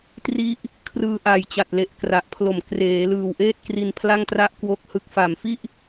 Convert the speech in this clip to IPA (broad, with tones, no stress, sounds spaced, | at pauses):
t r i˥˩ ʔ | kʰ r ɯː˧ ʔ a˩˦ j t͡ɕ a˨˩ t̚ l e˨˩ ʔ k r a˨˩ ʔ pʰ l o˨˩ m k r eː˩˦ l ɯː˨˩ w ʔ eː˥˩ t̚ k r i˧ n pʰ l a˥˩ ŋ t r a˥˩ ʔ k w o˦˥ k̚ h ɯ˦˥ k̚ f a˨˩ m f i˥˩ ʔ